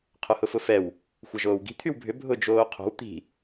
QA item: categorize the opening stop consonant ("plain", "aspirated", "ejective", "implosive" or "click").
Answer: aspirated